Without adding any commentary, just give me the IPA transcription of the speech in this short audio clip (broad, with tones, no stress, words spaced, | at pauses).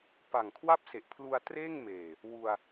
pa˨˩ŋkʰwa˥˩p̚se˨˩ʔ pʰlu˧a̯treː˥˩ŋmeː˨˩ | wu˧a̯